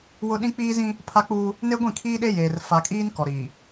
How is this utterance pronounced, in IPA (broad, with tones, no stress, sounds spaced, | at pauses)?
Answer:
w ʊ˦ ɗ ĩ˦ k͡p iː˦ z ĩ˦ | pʰ a˦ k͡p uː˦ | n e˦ ɡʷ ĩ˦˨ kʰ iː˦ ɗ e˦ j eː˨ r f a˨ kʼ iː˦ n k ɔ˨ ɾ iː˨